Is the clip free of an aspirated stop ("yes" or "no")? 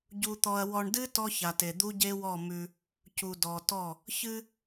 yes